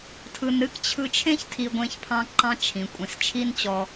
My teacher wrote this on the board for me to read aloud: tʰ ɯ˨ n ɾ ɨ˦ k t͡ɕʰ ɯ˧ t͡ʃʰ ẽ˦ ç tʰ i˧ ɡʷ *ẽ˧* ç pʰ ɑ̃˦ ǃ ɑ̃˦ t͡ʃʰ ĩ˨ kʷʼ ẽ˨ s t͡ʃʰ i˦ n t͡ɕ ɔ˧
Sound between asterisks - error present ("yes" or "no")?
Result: no